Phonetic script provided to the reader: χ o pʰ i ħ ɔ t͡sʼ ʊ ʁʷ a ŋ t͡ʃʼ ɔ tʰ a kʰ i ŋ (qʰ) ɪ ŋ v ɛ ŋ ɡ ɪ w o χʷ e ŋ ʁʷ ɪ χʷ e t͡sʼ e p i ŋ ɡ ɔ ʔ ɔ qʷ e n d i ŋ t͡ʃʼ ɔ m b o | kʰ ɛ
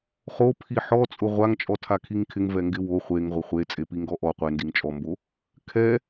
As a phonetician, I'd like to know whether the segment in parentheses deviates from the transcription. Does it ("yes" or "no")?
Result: yes